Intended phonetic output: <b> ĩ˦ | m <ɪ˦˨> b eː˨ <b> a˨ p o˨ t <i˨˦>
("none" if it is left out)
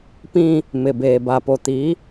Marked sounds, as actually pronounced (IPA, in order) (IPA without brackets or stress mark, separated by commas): p, ɪ˨, b, i˨˦